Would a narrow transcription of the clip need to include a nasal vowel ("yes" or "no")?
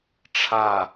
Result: no